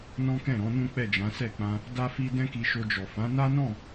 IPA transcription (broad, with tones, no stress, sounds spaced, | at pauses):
n ɔ̃˦ k ɛ̃˦˨ ɾ ɔ̃˨˦ n ũ˦ k͡p ɛ˦˨ d͡ʒ ã˨˦ s ɛ˦˨ k͡p ã˧ | d a˦ f i˦ d ɛ̃˦ k i˧ ʃ o˧ d͡ʒ ɔ˨ f ã˨˦ n a˦ n ɔ̃˦˨